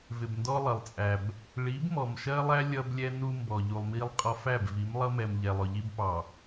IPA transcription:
v ɪ˨ b n d ɔ˦ lˠ ʌ˨ lˠ t͡sʼ æ˨ b | ɭ i˨˦ b m ɔ˨ m ʃ ɜ˦ lˠ æ˦ lʲ ʌ˦ b lʲ ɛ˦ n u˦ m b ɔ˨ ʎ u˨ lˠ m i˦ lˠ qʼ ɒ˦ f æ˦˨ b v i˨˦ m lˠ ʌ˦ m ɛ˨ m ʎ ɛ˨ lˠ ʊ˨ ʎ i˦ b p ɑ˨

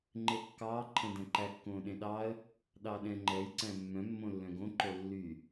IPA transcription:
ŋ͡ǃ e kː ɑː ǃʰ ɛ̃ d ɛ̃ ǃ æ kː õː ɗ ẽ ɗ ɑ ə̯ | ɗ ɑ ɗ ɛ̃ ŋ͡ǃ ɛ j ǀ æ̃ mː œ̃ mː õ lː œ̃ ɡ õ ǃ o lː y

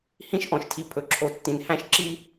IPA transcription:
h ĩ˦ ʃ ʔ ɔ̃˨ ʃ tʰ i˨ pʰ ɵ˨ ǁʰ o˨ tː ĩ˨ n h æ̃˦ ʃ ǁ i˦

